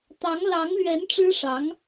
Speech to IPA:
t̪ɑ˧˥ŋlɑ˧˥ŋlɥɛ˧˥n ʈ͡ʂɻ̩˥ʂɑ˧˥ŋ

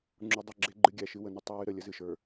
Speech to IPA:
ŋ͡ǁu˨dˤə˦˨ ɡ͡ǁe˦ɡ͡ǃɨ˦ ɡʲæ˨ʃɨ˦wə˨nʏ˦ tˤɨ˨wɨ˨ ɾə˨lʲə˨zɨ˨ʃə˞˨

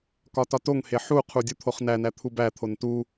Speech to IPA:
kɒtɒtoŋhe ħuqʰu dʲut̪ʰoχnænæ t̪ʰubæt̪ʰon tu

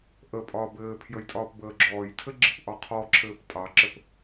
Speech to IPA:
ʔəpʼɒːb ɘːpʰjəjtʼɒːp bəːɡ͡ǁɔːjtʰɘɡ͡ǁɘp ʔɒqʰɔǁʰɘːp tʼɑǁɘp

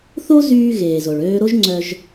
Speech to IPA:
θo˥zyː˧ɣeː˩ zo˩ɭøː˧ɾo˥ʒŋ͡ǀœ˧ʒ

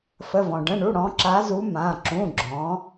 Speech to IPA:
fə˩˧˩vɔ̃˩ ɖə̃˩˧˩ɳu˩˧˩ɽɔ̃˩˧ ǁa˩˧zu˩˧ mã˩˧˩ ǁũ˩˧˩ɡ͡ǁɔ̃˩˧

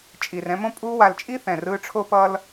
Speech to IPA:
t͡ʃʼi˨r ɛ̃˧mõ˦ pʼuː˧wa˨lt͡ʃʼi˦ θɛ̃˨rɯː˧ʈ͡ʂʰo˦ pʌ˧l

